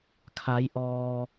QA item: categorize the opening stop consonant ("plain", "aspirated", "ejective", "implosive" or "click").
aspirated